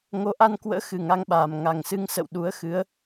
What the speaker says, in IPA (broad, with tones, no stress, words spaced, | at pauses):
ŋo˨˦ʔa˧nkwə̰ː˧˥ xɨ˨˩ ŋa˧ŋɓaː˨˩m ŋa˨˩ŋsɨ˧ŋsə̰˧˨w ɗu˨˦ə̯xɨ˨˦ə̯